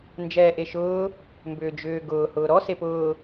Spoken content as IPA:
n d͡ʒ ɛː ʔ e ʃ ʊː | m b ʏː d͡ʒ ʏː ɡ ʊː h ʊː ɾ ɔ s e p ʊː

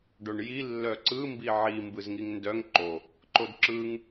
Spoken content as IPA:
ɖ o ɳ j i lː œ ǀ ɯ m b i ʕ i m b ɯ z ŋ i ŋ n d œ ŋ ǃ o | ǃ o d ǁ ɯ ŋ

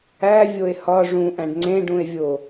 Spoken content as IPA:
æ vʲ o e̯ h ɒ ʐ ũ ʔ æ̃ ɖ ŋ͡ǀ ẽ ɖ ũ e̯ vʲ o

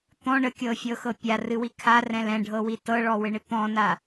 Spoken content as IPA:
t̪ ɔ̃ ɳ ə kʲ ɤ fʲ ɤ x ɤ pʲ a r ɨ w i kʰ a r ɛ̃ l ɛ̃ ɖʱ ɤ w i t ɤ ɭ ɔ w ɪ ɳ ɪ t̪ ɔ̃ n a

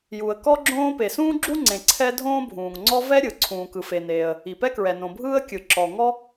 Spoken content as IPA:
j u˩ ə̯ k ɔ˥ ɡ͡ǁ õː˥ p e˩ s ũː˥ ɡ͡ǁ u˥ ŋ͡ǀ ẽ˩ ǀʰ ɛ˥ dʱ õː˥ bʱ ũː˩ ŋ ŋ͡ǀ ɔ˥ v ɛ˥ ɾʲ ɯ˩ ǀʰ ũː˩ k ɯ˩ f e˩ n eː˩ ə̯ | i˩ p ɛ˥ k ɹ ɛ˩ n õ˩ bʱ ɯː˥ ə̯ kʲ ɯ˩ ǁ ɔ˩ ŋ ɔ˥

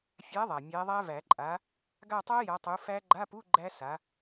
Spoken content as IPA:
fʲ a˨˦ ðˤ a˩ mʲ æ˨˦ ðˤ æ˦˥ v æ˨˩˦ ǃʼ a˨˦ | ɡ a˦˨ tˤ a˦˥ j a˨˦ tˤ u˨˦ f æ˦˥ ɡ͡ǃ a˧˥˧ p u˧˥˧ ɡ͡ǃ æ˦˥ s a˨˦

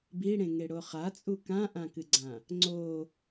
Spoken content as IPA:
b i ɽ ẽ ŋ e ɽ o χ a t͡sʼ u k ã ʔ ã k ɨ ɡ͡ǀ ã | ŋ͡ǀ o

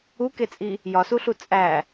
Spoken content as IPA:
u k e t͡sʼ i | j ɒ s u ɬ u t͡sʼ æ

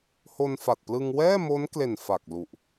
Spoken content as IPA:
h o˧ n f a˨˩ t̚ p l ɯ˧ ŋ w ɛː˥˩ m o˦˥ n k l e˨˩ n f a˨˩ k̚ l u˨˩ ʔ

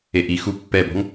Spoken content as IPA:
e ʔ i x u pː ɛ b ɔ̤ ŋ

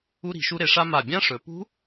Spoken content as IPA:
u˧ ɾ i̤˩˧ ʃ u˧ ɾ e˩˧ ʂ a˧ m a˧˩ bʲ ã˦˥ ʂ ɵ˩˧ p ṳ˦˥

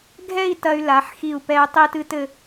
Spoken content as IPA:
ɡʱ ɛ˥˧ i̯ t ɐ˧ y̯ l a˩˧ ħ x i˧˩ u̯ p ɛ˧ y̯ tˤ i˥˧ t ɨ˥ t ɘ˥˧

